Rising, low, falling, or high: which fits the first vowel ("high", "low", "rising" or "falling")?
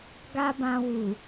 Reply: high